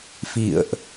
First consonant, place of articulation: labial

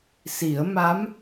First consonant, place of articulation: alveolar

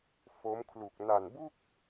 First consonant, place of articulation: labial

